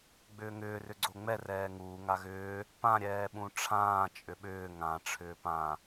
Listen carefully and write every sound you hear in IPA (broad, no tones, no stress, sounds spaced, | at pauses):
ɡ͡b ʏː ŋ ʏː r ʏ ɡ͡ǀ o ŋ͡m ɛ r ɛː ŋ uː ŋ a ɣ ʏː | p ã ɾʲ ɛː ɓ ũ ʈ͡ʂʰ ãː t͡ʃʼ ʏ ɓ ʏː ŋ ã ʈ͡ʂʰ ʏː p ã